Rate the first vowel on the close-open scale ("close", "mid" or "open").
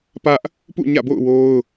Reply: open